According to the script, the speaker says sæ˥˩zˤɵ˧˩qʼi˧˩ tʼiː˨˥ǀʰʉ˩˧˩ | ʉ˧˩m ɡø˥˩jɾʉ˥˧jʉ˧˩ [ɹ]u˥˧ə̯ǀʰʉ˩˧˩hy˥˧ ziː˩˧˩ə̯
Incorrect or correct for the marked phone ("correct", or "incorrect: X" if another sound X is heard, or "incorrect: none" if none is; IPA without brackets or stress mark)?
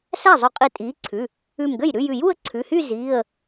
incorrect: j